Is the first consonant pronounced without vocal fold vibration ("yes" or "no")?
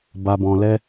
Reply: no